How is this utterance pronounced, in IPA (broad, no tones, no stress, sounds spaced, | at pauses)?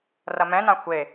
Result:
r ɐ m ɛ̃ n ã xʷ e